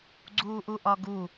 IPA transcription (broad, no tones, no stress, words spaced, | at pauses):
ɡ͡ǀuːʔuʔɒɡu